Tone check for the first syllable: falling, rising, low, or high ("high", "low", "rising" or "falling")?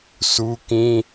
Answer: high